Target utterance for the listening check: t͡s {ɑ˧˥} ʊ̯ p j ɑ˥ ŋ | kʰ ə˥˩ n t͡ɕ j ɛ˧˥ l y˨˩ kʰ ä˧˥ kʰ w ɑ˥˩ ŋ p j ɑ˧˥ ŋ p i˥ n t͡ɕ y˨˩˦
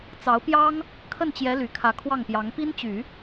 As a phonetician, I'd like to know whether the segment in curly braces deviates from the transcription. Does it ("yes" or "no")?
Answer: no